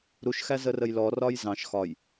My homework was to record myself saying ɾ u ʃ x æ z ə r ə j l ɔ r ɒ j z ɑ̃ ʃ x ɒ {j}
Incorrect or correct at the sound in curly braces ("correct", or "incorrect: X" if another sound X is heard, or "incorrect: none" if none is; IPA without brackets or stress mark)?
correct